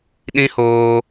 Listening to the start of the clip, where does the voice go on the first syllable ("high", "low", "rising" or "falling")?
high